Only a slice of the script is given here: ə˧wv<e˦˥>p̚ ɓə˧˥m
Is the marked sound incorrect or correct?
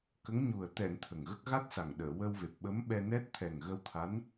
incorrect